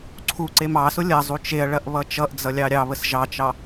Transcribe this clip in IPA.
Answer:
ǀʰ u ǀ e m ɑ s ʊ lʲ ɐ zˤ u t͡ʃ e ɐ̯ ɭ ɐ ʔ β ʌ t͡ʃ ʌ ʔ d͡z ʌ lʲ ɑ ɾʲ ɑ β ə s ʒ ɑ t͡ʃ ɑ

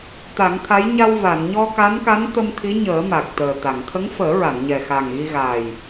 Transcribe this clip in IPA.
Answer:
t̪ a˨˩˦ ŋ t̪ʰ a˧˥ j ɲ a˧ w v a˨˩˨ n ɲ ɔ˧ k a˧˥ n k a˧˥ n t̪ ə˧ m t̪ʰ i˧˥ ɲ əː˨˩˦ m a˨˩ k̚ t̪ əː˨˩ t̪ a˨˩˨ ŋ t̪ʰ ə˧˥ ŋ f əː˨˩˦ ɹ a˨˩˨ n ɲ ɛ˨˩ x a˨˩ ŋ ɣ i˧ ɣ aː˨˩ j

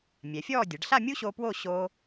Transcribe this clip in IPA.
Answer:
mʲ ɛ˩˧ fʲ ɔː˥˧ dʲ ɐ˩˧ ɖ ɬ a˥˧ mʲ u˥ ɕ o˧ p w o˥˧ ɕ oː˧

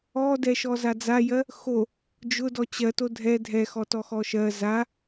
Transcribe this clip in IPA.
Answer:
ɔ d ɛ ʃ ɔ z a d͡z a j ɜ | x o | d͡ʒ ʊ d ɔ t͡ɕ ɜ t o dʱ ɛ dʱ ɛ x ɔ t ɔ x ɔ ʃ ɜ z a

